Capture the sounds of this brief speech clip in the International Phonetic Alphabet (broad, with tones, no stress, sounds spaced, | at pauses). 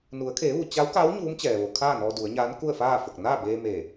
n u˩˧ ə̯ kʰ eː˩˧ ʋ u˩ t͡ɕ a˧˥ w k a˧˥ w ɲ uː˧˥ m t͡ɕ ɛː˩ ʋ o˩ kʰ aː˥˨ n ɔː˧ d u˩˧ ə̯ ɲ aː˧˥ n k u˥˨ ə̯ f aː˥˨ f o˧˩ k̚ n aː˥˨ b eː˧ m eː˧˩